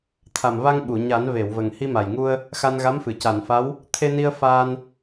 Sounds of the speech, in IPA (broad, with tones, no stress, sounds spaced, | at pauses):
t̪ʰ a˨˩ m v a˧ ŋ ɓ u˨˩˨ ɲ a˨˩˦ n v e˨˩˨ w v ə˨˩ ŋ h i˧ m a˨˩ j ŋ u˧ ə̯ | x a˧ n ɣ a˧˥ m f ɨ˨˩˨ c a˨˩˨ n f a˧˥ w | t̪ʰ e˧ n i˧ ə̯ f aː˧ n